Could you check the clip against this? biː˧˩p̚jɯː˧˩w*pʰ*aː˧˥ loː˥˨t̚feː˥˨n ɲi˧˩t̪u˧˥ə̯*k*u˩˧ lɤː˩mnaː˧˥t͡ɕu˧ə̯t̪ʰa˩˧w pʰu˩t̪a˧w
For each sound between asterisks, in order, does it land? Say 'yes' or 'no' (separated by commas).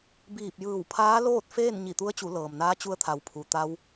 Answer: yes, no